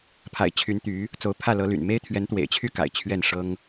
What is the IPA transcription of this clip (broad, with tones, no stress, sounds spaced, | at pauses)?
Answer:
pʰ a̰˨˩ ɪ̯ t͡ɕʰ y˧˥ n t̪ y˧˥ | t͡s o˧˥ ʊ̯ pʰ ä˥˩ l ɤ˧˥ l y̰˨˩ n m e˥ ɪ̯ t̪ʰ ɥ ɛ˧˥ n t̪ w ḛ˨˩ ɪ̯ t͡ɕʰ y˥˩ k a̰˨˩ ɪ̯ t͡ɕʰ ɥ ɛ˥˩ n ʂ ɤ˥ ŋ